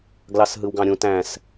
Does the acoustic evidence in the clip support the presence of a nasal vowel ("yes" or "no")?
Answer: yes